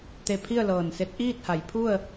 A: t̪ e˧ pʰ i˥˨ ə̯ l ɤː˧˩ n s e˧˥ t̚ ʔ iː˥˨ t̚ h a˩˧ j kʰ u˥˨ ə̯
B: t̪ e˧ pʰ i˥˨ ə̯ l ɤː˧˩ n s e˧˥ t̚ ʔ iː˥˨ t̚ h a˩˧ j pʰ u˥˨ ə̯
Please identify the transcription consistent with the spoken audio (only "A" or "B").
B